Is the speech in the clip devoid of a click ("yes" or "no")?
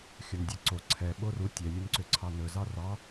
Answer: no